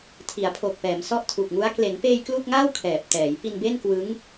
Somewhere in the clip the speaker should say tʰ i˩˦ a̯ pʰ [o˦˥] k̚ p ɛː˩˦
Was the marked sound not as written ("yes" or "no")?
yes